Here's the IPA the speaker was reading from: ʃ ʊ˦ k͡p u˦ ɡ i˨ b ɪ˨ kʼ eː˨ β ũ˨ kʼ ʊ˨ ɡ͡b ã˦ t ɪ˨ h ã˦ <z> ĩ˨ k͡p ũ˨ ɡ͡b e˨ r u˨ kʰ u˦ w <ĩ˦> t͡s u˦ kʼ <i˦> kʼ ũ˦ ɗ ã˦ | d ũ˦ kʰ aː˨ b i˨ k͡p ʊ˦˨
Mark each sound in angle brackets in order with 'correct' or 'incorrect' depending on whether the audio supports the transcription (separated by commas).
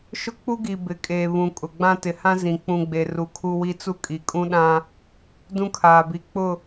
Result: correct, incorrect, incorrect